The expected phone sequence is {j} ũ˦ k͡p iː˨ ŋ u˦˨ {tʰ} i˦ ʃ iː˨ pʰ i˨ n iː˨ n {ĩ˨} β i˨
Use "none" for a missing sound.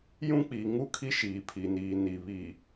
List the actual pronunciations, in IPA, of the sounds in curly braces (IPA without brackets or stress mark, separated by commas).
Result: j, kʰ, i˨